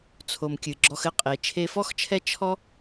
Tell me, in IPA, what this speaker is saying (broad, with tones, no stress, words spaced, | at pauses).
t͡sʰo˩mkʲɨ˩ɡ͡ǁɔ˧x ɘ˧qʼe˩ t͡ʃʰe˧fɔ˥xt͡ʃʰɛ˥ t͡ʃʰɔ˥